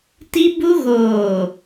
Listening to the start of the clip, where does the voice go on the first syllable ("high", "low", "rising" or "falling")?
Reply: high